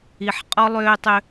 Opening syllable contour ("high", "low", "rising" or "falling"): low